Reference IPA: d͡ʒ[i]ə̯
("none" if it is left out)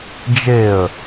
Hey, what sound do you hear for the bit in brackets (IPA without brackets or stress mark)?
e